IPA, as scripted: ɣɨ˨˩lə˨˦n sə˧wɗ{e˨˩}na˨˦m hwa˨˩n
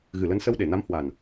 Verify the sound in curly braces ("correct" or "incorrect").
correct